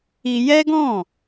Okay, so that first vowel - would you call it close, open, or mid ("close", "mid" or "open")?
close